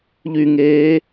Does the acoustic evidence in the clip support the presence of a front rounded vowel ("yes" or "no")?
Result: yes